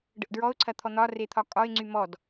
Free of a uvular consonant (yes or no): yes